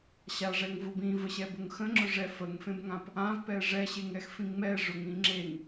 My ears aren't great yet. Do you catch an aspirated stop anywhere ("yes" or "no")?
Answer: no